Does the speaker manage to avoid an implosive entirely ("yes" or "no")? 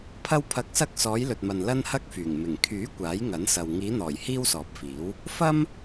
yes